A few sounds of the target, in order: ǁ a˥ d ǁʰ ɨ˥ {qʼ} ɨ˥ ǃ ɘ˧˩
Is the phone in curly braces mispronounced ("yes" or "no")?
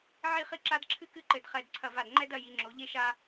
yes